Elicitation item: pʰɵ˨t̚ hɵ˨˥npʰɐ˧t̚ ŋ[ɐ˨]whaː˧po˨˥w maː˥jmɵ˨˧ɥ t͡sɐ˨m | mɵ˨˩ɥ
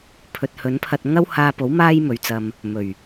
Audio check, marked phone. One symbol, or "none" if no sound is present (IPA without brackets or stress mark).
ɐ˥